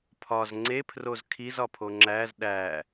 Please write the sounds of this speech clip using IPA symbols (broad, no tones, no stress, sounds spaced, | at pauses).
pʰ ɒ z ŋ͡ǀ e pʰ r o z kʰ i z ɒ pʰ o ŋ͡ǁ æ z ɗ æ